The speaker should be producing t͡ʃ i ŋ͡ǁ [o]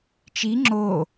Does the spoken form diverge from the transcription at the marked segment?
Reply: no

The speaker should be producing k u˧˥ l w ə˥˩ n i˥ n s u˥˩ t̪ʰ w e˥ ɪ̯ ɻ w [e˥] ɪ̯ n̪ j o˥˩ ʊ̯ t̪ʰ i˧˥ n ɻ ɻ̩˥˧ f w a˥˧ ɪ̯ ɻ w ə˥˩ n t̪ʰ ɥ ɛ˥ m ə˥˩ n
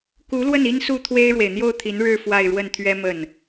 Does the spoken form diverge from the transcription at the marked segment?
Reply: yes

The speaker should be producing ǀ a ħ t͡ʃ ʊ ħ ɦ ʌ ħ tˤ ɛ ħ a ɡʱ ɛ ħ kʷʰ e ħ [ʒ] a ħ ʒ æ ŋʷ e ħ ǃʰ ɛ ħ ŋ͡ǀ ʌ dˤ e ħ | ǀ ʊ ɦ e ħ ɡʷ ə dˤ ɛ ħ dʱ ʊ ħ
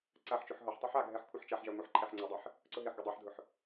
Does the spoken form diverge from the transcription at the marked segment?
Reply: yes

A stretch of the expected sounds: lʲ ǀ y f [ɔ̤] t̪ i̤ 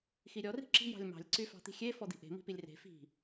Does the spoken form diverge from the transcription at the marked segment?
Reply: yes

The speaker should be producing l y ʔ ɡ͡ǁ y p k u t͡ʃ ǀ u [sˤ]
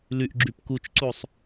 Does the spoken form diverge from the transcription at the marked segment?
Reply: no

